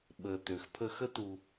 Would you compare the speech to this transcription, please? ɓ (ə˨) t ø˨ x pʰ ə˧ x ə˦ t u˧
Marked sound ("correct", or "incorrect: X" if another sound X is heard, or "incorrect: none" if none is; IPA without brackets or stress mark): correct